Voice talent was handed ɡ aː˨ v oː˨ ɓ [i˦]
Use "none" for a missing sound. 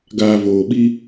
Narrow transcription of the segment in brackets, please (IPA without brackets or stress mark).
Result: i˦